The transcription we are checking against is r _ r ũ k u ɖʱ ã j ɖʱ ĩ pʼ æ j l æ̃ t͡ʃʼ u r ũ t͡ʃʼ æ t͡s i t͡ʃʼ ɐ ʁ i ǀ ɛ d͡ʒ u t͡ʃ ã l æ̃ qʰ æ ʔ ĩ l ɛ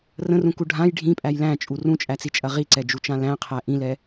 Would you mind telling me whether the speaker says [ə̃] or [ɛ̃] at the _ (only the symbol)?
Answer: ə̃